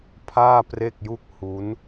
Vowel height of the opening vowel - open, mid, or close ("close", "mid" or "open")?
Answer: open